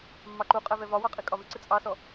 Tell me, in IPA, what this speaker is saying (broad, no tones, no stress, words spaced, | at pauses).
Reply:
mːɑǃuqʼɛ vɛvɒwɑ qʼikʼɒvɪǀɪ t͡sʼɑsɔ